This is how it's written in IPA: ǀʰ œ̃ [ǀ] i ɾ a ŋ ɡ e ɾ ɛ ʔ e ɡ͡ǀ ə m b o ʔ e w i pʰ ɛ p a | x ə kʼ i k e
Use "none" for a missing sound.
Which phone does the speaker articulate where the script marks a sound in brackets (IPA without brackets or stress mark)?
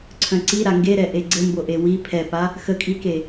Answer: ǀ